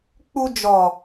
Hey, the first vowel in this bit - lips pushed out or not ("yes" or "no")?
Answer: yes